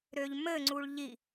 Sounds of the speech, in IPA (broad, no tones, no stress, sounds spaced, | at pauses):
ɾ ø ʎ m ɘ ŋ͡ǀ u ɭ ʎ i